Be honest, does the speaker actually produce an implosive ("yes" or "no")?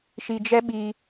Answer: yes